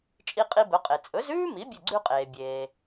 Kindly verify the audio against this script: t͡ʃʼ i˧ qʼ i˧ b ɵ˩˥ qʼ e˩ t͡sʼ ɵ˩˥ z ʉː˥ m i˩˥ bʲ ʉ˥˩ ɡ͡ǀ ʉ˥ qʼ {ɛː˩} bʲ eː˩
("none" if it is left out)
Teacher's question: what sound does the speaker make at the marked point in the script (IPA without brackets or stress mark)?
eː˩